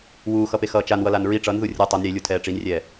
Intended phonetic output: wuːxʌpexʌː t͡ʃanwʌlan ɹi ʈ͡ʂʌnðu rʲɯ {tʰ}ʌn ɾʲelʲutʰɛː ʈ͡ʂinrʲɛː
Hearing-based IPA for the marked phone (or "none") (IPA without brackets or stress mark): tˤ